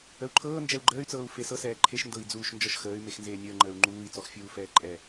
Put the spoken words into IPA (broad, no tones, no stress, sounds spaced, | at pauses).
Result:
ə u̯ ǃʰ ɤː n d͡ʒ ɛ u̯ ɡ͡ǃ əː y̯ t͡s ɤː u̯ f e s ɤ s ɛː ǃʰ e ʃ n d ɤ i̯ d͡z uː ʃ n d͡ʒ ɔ ʃ x əː y̯ m e x n z eː nʲ əː ŋ͡ǃ əː u̯ ŋ͡ǃ uː i̯ t͡s ɔ x fʲ uː f ɛː ǃʼ ɛ